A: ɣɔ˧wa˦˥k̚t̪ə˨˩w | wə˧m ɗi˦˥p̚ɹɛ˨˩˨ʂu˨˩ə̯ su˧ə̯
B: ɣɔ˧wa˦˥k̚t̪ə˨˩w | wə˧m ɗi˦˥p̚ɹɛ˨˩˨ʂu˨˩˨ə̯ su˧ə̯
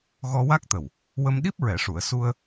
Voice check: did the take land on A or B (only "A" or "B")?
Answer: B